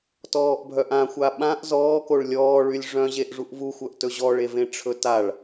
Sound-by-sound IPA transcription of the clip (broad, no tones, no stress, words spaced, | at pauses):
tɔːʔbʱœʔãxʷa ɓãʔ zɔːkoɭ lʲɔːɭylʲ ʐœ̃ʑeʔ ʐuʔvuxʷœʔ tɵʑɔɭevẽ ʈ͡ʂʰɵtaɭ